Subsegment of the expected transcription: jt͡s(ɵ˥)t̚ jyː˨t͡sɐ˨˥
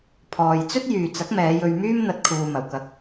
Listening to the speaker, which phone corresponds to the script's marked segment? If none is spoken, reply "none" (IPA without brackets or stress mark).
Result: ɵ˥